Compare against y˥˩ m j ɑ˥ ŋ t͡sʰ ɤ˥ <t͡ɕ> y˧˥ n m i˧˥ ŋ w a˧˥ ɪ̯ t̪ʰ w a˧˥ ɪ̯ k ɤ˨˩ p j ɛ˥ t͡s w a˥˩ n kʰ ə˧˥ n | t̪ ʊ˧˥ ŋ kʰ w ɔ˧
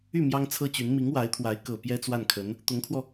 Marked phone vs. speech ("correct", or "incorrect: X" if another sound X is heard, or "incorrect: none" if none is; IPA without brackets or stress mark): correct